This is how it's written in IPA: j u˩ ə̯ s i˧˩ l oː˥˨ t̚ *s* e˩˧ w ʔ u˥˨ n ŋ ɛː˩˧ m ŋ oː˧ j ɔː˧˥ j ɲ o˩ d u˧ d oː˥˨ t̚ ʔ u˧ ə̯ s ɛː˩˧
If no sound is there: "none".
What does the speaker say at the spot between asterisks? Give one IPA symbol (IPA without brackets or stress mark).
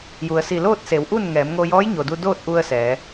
s